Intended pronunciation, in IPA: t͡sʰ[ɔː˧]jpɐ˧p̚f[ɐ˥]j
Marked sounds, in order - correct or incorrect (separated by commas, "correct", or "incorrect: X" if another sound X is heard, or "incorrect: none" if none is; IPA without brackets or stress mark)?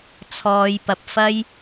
correct, correct